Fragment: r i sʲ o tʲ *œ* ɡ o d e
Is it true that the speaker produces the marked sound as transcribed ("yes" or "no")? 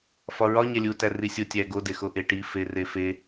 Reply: no